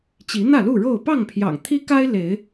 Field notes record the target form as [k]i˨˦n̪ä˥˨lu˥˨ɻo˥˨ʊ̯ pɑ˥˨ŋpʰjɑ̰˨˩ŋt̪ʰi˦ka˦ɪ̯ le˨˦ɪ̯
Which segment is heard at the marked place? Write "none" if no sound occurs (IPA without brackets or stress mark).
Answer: t͡ɕ